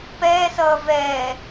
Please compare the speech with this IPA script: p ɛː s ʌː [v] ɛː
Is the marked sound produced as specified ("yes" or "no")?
yes